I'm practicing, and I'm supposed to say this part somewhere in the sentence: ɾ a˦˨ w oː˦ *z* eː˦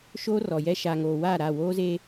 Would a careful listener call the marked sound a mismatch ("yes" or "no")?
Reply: no